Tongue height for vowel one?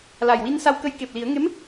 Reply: low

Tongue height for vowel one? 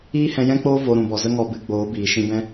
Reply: high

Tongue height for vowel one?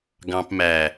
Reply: low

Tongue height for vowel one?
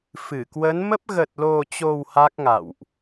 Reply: high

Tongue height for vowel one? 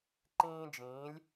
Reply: high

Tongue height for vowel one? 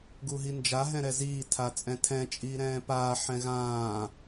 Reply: high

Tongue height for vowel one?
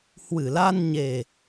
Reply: high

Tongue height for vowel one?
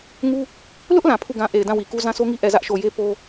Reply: high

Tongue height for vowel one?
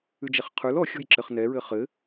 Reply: high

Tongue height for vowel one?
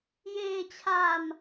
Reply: mid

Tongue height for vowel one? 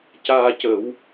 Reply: low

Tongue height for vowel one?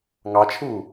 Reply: low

